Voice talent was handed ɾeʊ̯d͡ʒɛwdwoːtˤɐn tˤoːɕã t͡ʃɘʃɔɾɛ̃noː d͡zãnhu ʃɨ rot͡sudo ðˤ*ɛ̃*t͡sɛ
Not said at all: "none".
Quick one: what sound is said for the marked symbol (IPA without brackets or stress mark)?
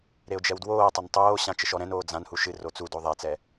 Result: ɛ